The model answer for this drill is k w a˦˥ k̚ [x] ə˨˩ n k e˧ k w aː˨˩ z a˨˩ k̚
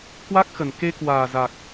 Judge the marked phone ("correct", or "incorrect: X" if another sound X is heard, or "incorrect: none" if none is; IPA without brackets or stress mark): correct